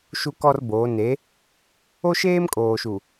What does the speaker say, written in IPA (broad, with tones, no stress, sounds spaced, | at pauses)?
ʃ u˦ k ɔ˦ r b oː˨˦ n e˨˦ | o˦ ʃ eː˦ m kʼ oː˨ ʃ u˨